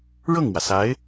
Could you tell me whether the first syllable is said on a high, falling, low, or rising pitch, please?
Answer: falling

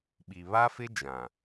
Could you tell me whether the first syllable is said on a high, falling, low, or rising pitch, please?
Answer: low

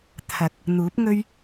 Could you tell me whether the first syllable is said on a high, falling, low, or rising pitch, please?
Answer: rising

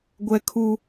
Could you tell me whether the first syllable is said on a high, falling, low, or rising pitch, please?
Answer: high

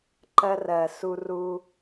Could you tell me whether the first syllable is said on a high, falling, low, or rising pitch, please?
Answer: high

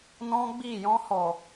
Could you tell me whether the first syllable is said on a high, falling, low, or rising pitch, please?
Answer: high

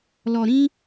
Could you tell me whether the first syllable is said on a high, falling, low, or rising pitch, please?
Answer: low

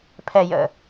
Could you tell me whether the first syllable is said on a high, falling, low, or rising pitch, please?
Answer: low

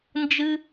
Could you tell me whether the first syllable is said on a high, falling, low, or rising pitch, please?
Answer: high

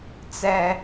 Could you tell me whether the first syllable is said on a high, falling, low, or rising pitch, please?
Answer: high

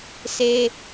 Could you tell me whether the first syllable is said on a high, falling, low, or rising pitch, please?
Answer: high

